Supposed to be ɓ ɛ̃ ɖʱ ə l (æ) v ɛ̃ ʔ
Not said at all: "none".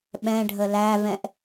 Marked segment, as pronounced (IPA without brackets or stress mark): æ